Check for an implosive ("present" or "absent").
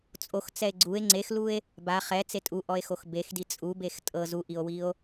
absent